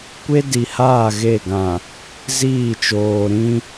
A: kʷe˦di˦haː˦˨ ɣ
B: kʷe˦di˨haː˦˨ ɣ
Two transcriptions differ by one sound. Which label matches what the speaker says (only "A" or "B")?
B